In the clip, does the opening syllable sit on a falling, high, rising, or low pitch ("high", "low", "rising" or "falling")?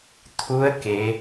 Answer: rising